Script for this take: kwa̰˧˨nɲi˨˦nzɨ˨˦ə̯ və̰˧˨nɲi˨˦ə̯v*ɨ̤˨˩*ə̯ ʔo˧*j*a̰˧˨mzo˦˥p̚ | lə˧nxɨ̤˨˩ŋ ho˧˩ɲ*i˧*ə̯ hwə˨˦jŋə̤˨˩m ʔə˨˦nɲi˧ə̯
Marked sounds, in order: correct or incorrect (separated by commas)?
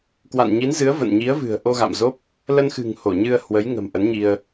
correct, incorrect, incorrect